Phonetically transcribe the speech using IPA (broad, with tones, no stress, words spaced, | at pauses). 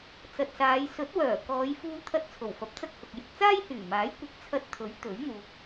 t͡sɐ˨t̚saː˨˧j sɵ˨˥t̚wœː˨˩ kɔː˨˧jfuː˧t̪ʰɐ˧t̚ t͡sʰo˨˩wfɐ˨˥p̚t͡sɐ˥k̚hʊ˨k̚ jɪ˨k̚t͡saː˥jhyː˨˩maː˨˥j kʷɪ˨˥k̚t͡sʰɐ˧t̚t̪ʰɵ˨˥ɥ t̪ɵ˨˥ɥn̪uː˨k̚